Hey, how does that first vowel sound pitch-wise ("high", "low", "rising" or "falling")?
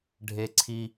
high